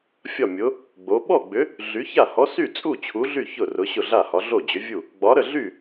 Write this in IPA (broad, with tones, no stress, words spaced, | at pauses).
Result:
fʲɒ˥˩mʲʊ˨˥ | ɡ͡bo˨˥ ɓɔ˥˩ɡ͡bʏ˨˥ | ɮy˨˥ça˥˩ hɔ˨˥sy˥˩t͡sʼu˥˩ t͡ɕʰu˨˥ɮy˥˩ çʊ˥˩ rʊ˨˥ɕʊ˥˩ɮa˥˩hɒ˨˥ ɮo˥˩d͡ʑʏ˨˥vʲu˥˩ | ɡ͡bɒ˨˥ɾə˥˩ɮy˥˩